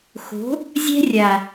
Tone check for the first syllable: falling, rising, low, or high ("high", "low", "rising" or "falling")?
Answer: rising